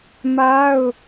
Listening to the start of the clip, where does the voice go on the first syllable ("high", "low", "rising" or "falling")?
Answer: high